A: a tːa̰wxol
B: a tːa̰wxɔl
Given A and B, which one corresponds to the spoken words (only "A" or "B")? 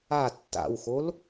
A